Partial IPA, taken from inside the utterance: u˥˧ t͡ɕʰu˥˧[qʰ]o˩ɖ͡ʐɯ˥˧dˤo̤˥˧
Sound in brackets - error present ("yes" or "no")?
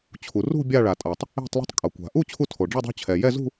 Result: yes